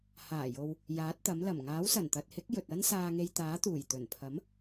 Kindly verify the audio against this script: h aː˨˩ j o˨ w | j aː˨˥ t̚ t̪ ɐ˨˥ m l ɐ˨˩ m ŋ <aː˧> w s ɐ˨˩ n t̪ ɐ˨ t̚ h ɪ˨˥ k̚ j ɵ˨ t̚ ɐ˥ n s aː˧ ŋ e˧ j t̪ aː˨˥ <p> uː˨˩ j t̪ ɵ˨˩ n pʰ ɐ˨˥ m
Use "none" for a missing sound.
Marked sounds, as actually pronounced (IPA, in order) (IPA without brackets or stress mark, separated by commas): aː˨˥, t̪